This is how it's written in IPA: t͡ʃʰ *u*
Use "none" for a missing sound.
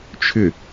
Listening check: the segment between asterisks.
ʏ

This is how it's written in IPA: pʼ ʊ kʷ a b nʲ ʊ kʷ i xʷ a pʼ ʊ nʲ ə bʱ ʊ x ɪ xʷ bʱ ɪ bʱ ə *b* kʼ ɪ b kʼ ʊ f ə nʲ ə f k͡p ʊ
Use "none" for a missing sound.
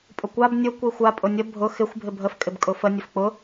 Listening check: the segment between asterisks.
f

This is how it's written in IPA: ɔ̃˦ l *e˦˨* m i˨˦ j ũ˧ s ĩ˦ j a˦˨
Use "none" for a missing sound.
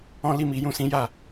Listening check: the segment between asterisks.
i˦˨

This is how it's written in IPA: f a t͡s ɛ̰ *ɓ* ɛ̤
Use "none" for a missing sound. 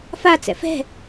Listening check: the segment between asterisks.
f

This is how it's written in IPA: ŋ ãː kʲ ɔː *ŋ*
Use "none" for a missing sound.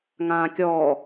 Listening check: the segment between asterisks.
none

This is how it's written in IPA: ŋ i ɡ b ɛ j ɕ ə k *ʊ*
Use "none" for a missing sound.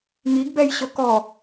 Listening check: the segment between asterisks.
ɔ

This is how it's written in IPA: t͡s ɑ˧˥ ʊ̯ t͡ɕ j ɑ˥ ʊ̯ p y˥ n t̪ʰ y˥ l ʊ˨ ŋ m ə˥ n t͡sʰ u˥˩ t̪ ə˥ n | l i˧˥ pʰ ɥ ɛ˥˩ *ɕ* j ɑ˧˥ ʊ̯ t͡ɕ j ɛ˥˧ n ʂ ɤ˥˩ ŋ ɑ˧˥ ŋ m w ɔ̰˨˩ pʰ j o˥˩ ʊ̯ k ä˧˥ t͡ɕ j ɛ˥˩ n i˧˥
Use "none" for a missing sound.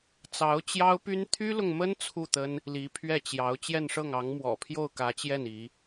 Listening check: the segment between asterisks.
t͡ɕ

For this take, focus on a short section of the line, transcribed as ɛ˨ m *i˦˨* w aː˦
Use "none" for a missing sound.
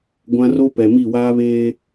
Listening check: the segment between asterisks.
i˦˨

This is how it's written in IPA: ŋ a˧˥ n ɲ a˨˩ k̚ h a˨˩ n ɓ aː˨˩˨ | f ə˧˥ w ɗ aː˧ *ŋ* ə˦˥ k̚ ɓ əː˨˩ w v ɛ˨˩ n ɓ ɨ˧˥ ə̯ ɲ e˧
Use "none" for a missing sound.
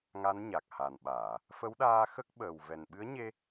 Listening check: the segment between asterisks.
x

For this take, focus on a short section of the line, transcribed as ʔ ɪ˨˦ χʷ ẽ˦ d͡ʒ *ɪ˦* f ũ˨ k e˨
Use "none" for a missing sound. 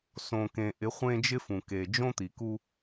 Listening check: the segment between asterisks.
ɪ˦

